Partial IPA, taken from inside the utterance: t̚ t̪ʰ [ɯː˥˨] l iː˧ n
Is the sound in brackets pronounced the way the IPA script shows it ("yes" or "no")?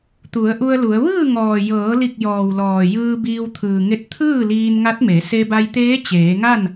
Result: yes